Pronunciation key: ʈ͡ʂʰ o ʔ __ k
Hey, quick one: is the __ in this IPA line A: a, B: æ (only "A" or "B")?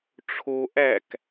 B